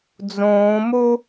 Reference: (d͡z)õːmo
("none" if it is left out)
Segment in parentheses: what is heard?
d͡z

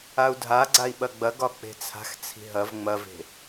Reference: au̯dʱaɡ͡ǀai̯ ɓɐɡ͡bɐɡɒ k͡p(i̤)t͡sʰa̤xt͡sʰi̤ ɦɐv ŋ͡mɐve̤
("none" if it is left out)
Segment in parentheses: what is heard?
e̤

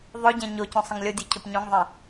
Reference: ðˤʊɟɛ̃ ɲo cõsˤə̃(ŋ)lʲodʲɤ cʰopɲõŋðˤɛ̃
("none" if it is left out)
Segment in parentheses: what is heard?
ŋ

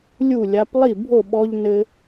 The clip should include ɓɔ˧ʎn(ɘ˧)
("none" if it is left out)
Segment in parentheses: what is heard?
ɘ˧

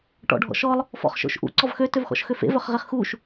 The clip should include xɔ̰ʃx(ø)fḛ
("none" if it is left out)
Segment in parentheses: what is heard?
ø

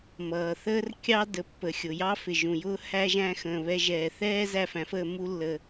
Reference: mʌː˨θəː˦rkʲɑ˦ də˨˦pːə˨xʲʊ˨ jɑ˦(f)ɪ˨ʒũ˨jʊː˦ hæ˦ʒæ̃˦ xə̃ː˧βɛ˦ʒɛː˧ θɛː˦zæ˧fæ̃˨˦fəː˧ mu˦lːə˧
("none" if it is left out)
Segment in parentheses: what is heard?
f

